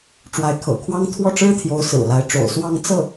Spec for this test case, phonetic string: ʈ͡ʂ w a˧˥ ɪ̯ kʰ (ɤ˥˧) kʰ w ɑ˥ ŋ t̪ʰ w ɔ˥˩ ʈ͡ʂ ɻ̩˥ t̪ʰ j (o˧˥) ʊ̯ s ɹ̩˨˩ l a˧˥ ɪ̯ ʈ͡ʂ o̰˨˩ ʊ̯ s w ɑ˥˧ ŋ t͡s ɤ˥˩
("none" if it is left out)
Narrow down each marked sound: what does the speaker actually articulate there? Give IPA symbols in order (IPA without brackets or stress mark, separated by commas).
ɤ̰˨˩, o˧˥